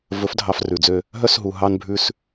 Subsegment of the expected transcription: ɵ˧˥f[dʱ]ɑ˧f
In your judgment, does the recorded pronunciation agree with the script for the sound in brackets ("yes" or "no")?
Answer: yes